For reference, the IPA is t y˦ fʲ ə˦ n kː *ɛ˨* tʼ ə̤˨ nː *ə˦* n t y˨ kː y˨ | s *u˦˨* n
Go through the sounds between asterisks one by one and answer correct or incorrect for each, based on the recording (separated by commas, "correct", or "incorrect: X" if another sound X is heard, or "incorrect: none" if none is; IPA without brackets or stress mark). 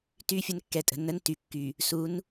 correct, correct, incorrect: u˨˦